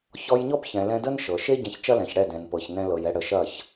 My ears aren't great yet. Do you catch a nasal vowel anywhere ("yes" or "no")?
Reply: yes